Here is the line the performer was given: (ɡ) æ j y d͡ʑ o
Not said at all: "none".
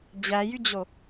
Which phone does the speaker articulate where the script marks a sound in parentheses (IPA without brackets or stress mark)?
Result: d͡ʑ